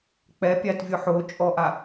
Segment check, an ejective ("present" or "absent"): present